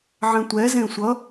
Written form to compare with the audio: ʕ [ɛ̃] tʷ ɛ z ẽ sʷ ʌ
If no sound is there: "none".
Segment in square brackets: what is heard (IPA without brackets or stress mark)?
ɛ̃